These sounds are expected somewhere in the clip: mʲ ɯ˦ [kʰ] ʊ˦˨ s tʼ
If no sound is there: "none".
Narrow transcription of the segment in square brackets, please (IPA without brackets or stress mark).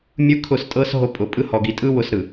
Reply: kʰ